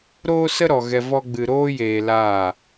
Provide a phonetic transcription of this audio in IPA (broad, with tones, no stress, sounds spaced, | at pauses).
ɾ oː˦ s ə˦ ɾ ɔ˨ ɣ ɛ˧ v ɔ˦ ɡ͡b ɨ˧ ɾ oː˦ j eː˧ l aː˦˨